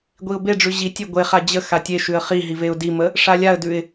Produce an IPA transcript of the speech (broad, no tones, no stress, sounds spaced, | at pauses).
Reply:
ɡʷ i ʊ̯ b e ɖ͡ʐ ʉ ʑ i tʲ e ɡʷ e χ a d͡ʑ ə x a tʲ e ʃ ʉ ə̯ χ i ɦ i v e ʊ̯ d i m ə | ʂ a lʲ a ə̯ d ʉ ɪ̯